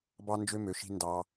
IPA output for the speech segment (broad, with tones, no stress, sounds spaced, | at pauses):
b ɑ˦ n d͡ʒ ø˦ m ø˨ ʃ i̤˦ n d ɑ˦